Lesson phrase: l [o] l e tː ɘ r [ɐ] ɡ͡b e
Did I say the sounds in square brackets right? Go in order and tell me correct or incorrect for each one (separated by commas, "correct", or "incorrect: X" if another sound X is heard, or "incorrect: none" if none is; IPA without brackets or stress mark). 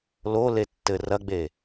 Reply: correct, correct